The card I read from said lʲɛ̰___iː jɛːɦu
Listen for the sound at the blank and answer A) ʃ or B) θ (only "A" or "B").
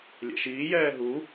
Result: A